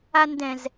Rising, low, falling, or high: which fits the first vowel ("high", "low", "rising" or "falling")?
high